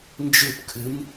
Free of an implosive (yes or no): yes